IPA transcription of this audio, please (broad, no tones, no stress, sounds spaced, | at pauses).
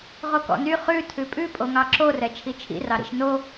ʁ o k ɔ̰ n y χ ʉ tʰ ʉ pʼ ʉ pʼ o ŋ ɑ ǁ o r ɛ t͡ʃʰ i t͡ʃʰ ḭ r ɑ ɾ ḭ ʃ n o